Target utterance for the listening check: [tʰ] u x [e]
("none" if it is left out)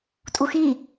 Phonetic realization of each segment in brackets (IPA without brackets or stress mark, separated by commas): tʼ, i